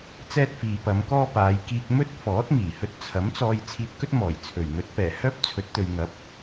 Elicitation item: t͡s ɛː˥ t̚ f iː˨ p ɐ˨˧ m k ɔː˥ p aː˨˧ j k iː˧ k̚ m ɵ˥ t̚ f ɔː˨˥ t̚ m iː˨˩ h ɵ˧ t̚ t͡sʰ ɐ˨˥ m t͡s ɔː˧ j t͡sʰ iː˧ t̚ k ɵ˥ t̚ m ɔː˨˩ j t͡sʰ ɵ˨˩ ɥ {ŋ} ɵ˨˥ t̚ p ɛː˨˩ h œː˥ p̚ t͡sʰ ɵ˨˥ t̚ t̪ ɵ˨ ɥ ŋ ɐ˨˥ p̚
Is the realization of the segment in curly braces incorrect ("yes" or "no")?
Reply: no